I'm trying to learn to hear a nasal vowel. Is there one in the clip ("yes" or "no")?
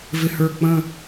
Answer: yes